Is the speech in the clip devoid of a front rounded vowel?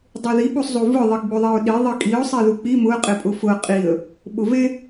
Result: yes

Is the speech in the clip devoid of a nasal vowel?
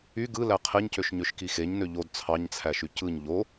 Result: yes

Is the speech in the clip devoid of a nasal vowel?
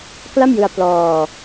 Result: yes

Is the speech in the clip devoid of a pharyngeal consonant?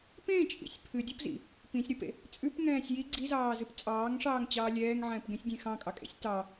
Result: no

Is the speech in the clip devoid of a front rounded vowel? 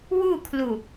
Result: yes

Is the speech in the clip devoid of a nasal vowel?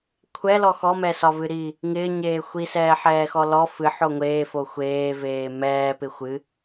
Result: yes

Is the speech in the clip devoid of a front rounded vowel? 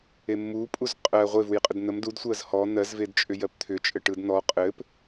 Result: no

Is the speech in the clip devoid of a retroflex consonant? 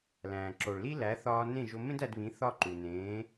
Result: no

